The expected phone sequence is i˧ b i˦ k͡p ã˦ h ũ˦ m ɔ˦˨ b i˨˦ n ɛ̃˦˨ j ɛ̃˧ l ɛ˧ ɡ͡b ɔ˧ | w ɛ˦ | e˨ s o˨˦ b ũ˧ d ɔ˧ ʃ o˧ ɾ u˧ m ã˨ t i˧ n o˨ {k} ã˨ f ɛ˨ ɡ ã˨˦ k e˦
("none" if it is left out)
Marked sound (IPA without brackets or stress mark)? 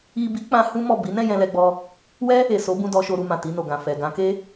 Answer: ɡ